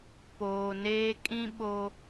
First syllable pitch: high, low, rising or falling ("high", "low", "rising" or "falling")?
low